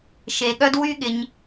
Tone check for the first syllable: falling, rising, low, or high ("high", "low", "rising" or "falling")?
low